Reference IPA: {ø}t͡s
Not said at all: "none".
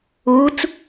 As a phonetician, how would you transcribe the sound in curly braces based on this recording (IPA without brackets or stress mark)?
u